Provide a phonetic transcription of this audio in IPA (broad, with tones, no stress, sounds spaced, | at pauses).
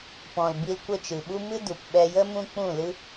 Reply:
p ɔ̃˨ l b i˧ l kʷ ə˦˨ t͡ʃ ɨ˨ ɓ u˦ m ɨ˦ d u˨ p ɓ ɛ˧ j ə˦ m ũ˦ k͡p ũ˦˨ l ɨ˦